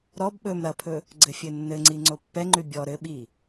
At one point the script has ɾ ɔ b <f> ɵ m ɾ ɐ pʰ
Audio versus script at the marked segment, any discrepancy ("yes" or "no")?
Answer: yes